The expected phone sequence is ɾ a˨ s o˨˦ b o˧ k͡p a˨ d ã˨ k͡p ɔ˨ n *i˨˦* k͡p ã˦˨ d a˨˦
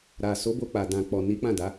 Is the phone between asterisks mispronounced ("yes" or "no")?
no